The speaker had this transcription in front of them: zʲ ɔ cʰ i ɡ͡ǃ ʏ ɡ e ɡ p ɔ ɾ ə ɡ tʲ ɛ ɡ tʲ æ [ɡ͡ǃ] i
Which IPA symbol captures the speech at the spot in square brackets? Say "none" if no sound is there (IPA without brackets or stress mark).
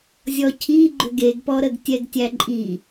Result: ǃʼ